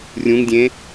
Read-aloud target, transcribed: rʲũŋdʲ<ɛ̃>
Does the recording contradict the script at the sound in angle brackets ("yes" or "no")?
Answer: yes